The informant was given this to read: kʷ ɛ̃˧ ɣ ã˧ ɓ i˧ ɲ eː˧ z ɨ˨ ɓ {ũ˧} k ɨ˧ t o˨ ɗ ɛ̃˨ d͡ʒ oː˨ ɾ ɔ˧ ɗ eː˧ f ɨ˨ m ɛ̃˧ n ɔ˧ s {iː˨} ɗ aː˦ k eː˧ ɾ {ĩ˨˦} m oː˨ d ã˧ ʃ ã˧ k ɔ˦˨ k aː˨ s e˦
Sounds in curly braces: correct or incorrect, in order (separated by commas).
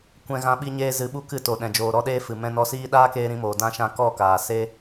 incorrect, incorrect, correct